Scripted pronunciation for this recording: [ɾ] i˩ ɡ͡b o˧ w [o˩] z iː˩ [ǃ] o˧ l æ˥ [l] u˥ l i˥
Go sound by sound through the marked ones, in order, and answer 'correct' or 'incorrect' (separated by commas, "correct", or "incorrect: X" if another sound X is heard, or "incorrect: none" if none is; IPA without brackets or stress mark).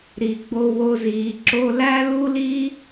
correct, incorrect: o˧, incorrect: ǁ, correct